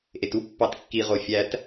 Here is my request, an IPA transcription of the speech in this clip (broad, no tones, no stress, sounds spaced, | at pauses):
ʔ e t u pː ɑ t kː i ʁ o fʲ æ t